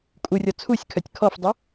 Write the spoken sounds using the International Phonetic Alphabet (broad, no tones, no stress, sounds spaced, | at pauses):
kʼ u rʲ ɔ t͡sʰ u sʲ kʰ œ tʲ kʰ ɔ f dˤ ə